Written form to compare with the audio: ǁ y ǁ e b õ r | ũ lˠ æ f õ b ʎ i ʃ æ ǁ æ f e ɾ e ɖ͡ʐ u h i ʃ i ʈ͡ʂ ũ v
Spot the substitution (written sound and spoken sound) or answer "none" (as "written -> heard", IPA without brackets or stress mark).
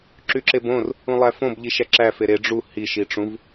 none